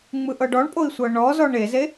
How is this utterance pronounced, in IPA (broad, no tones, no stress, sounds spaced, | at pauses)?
ŋ͡m ɯ ʔ ɤ ɖ ɔ ɳ pʼ o i̯ sʷ ɤ ɳ ɔ z ɔ ɳ e z e